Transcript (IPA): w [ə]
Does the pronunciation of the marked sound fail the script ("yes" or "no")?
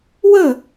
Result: no